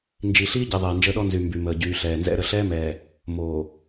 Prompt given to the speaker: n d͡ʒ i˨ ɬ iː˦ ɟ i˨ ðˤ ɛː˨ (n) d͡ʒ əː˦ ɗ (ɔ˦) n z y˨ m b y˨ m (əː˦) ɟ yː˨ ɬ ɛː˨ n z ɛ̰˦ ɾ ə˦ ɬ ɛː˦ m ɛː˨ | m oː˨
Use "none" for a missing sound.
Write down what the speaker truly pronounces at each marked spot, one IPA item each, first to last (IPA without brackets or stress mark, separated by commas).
n, ɔ˦, əː˨